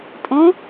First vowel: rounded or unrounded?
rounded